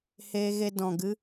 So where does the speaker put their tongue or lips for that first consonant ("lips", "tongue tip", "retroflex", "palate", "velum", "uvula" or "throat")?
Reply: throat